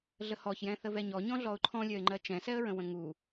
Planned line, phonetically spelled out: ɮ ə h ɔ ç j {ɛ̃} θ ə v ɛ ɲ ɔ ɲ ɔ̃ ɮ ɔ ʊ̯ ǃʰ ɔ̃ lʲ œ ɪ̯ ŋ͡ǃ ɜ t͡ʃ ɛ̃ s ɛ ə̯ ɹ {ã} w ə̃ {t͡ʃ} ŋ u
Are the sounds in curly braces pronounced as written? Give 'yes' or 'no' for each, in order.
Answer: yes, no, no

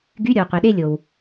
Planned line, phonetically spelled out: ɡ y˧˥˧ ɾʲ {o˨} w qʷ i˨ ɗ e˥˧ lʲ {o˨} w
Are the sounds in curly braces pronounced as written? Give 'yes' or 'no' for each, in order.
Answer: yes, yes

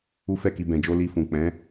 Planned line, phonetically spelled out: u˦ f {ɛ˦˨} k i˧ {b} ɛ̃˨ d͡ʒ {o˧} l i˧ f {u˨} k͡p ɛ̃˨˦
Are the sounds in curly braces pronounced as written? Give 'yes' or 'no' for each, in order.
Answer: yes, yes, yes, no

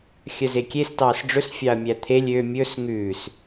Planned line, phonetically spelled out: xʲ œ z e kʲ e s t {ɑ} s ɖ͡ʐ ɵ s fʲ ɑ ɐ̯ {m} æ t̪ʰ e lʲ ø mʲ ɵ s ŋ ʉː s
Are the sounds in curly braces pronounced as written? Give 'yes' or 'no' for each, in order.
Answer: no, no

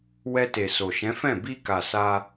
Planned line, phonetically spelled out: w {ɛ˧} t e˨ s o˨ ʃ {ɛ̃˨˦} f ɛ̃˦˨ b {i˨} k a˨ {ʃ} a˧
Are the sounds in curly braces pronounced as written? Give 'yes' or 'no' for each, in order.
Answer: yes, yes, no, no

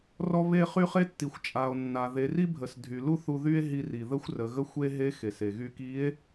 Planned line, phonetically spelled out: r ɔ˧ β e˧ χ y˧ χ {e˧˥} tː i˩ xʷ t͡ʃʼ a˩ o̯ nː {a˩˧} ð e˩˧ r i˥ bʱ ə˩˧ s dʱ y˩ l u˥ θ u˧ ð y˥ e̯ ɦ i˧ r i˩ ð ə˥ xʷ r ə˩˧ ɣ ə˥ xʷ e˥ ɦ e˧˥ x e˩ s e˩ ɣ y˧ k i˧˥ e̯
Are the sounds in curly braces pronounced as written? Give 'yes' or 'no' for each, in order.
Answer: yes, no

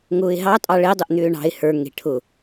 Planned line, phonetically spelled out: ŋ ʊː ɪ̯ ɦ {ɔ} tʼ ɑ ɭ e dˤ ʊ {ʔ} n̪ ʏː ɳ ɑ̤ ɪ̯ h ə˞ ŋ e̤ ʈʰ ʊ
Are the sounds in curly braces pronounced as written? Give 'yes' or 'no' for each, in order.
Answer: no, yes

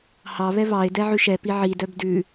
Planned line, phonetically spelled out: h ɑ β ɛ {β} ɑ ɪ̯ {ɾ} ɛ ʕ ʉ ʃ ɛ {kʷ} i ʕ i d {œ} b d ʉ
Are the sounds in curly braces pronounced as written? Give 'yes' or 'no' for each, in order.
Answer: yes, no, no, yes

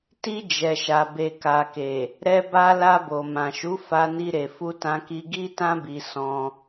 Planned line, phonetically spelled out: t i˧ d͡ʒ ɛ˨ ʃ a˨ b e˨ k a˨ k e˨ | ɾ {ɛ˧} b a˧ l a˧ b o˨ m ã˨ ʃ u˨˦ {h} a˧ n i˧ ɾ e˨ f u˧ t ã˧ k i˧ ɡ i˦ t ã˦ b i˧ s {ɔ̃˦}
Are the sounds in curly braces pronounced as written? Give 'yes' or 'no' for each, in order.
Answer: yes, no, yes

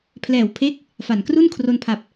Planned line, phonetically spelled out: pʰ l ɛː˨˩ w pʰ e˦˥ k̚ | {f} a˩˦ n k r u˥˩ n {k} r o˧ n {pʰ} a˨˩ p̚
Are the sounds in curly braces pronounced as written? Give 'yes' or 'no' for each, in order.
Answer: yes, no, yes

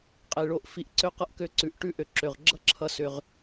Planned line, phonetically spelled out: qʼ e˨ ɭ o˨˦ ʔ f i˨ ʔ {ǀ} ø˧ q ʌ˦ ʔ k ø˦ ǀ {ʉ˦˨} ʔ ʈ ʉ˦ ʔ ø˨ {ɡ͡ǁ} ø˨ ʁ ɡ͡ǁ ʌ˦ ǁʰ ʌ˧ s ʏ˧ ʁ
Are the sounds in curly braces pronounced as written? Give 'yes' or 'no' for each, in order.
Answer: yes, no, no

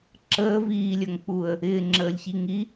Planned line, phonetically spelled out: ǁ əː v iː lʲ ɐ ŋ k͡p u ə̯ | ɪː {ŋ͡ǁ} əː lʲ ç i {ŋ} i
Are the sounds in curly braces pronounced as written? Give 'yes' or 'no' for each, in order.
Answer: yes, yes

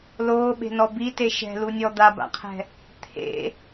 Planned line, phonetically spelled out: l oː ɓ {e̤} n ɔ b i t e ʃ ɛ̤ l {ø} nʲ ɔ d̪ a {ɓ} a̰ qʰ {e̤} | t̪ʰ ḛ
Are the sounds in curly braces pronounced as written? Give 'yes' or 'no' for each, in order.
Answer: yes, no, no, no

